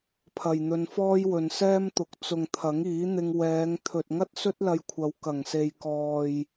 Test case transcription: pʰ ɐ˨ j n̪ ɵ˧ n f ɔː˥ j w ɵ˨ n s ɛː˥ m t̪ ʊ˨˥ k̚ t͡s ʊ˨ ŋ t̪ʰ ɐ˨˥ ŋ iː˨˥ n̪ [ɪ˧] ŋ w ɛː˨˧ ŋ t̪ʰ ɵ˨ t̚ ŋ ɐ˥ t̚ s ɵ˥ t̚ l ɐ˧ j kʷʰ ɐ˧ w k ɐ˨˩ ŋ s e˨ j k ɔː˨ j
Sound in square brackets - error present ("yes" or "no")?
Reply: no